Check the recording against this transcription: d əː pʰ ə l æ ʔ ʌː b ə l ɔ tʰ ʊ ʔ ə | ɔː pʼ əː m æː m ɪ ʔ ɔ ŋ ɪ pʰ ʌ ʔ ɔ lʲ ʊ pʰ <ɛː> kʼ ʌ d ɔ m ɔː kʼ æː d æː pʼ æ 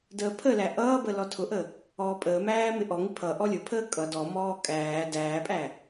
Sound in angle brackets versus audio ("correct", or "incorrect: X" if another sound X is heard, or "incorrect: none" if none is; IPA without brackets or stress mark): incorrect: əː